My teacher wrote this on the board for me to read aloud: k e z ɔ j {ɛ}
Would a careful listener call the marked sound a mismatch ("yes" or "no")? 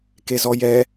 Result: no